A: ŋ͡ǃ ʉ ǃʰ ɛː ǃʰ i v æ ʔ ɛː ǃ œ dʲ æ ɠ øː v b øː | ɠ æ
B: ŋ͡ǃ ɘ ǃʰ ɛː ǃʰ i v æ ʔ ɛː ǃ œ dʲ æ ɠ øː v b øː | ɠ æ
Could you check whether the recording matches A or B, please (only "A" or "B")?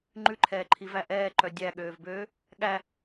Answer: A